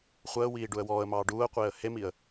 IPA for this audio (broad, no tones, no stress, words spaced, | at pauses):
χʷəːwiː ɖuə̯wɔːə̯mɑː ɖuːə̯qʷeːə̯ hemiə̯